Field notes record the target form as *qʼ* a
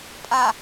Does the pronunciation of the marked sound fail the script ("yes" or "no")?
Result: yes